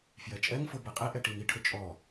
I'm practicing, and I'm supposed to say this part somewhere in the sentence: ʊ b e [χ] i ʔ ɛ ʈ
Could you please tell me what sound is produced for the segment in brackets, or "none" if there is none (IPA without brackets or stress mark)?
qʼ